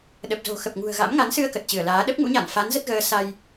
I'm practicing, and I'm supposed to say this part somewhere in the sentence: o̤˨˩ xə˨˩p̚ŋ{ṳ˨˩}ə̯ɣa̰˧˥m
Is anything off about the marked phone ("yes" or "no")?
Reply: no